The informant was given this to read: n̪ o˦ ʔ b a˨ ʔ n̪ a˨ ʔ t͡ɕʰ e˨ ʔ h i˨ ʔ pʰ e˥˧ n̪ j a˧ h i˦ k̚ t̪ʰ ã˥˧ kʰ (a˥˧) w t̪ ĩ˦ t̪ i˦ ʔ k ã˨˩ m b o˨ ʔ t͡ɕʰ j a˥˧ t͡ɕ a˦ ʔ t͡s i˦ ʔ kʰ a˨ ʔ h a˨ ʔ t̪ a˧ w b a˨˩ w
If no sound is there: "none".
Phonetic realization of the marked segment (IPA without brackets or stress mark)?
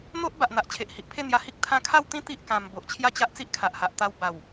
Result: a˥˧